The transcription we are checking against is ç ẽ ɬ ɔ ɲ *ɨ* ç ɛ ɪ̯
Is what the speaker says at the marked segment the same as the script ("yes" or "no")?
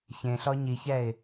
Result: no